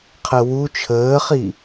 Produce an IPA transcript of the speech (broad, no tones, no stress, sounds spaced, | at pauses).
qʰ ə w u t͡ʃʰ əː χ i